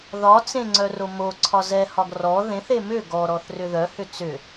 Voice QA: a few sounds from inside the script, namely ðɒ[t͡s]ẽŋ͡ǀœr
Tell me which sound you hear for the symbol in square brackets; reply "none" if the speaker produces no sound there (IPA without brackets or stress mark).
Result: t͡s